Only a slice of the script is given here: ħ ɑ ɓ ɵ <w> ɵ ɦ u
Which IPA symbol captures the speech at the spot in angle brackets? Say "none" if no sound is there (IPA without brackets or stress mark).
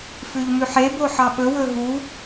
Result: w